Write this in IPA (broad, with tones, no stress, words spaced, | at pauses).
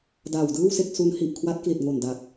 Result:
daː˨˩wdɯː˥˩wse˥˩k̚ su˦˥n hi˨˩ʔkʰwa˦˥t̚kli˨˩t̚ ŋo˨˩nda˨˩k̚